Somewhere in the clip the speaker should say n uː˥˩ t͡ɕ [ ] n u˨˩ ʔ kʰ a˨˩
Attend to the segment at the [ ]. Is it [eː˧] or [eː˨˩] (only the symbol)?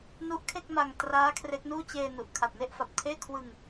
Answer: eː˧